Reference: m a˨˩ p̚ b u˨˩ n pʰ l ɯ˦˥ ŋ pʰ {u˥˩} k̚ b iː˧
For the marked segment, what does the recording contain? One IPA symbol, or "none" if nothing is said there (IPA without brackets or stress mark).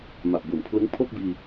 o˥˩